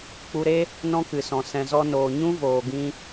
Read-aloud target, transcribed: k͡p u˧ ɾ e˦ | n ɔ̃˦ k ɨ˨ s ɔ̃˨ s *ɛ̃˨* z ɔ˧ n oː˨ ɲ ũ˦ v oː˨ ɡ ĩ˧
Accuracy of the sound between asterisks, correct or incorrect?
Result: correct